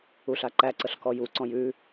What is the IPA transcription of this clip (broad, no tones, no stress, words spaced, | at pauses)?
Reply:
uɬaǃæǀəɬ kɔjuǀɔ̃j ʉ